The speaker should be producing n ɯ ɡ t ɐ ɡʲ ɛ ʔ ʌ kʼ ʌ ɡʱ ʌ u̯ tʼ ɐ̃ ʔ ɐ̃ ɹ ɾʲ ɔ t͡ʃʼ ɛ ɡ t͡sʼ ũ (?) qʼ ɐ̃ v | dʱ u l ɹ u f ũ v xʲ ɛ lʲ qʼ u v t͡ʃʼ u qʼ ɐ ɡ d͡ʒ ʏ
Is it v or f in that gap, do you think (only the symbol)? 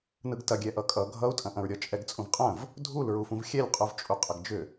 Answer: v